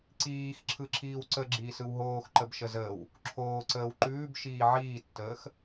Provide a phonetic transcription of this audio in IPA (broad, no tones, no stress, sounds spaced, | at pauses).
ǀ iː x ǁʰ ɯ ǁʰ iː w ǀ ə ɡ͡ǁ iː s ɯ w ɦ oː x ǃ ə b ʃ ə z əː w | ǁʰ oː ǀ əː w ǃ ʉː b ʃ iː ʕ iː tː əː x